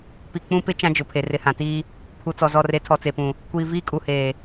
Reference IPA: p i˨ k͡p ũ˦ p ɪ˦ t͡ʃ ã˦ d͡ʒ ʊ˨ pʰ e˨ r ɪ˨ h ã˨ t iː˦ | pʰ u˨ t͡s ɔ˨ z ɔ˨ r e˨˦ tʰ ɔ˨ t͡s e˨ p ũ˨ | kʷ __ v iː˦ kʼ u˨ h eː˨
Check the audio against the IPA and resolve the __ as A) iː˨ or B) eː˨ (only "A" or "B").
A